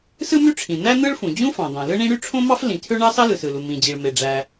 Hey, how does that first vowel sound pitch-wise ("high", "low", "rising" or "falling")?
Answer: high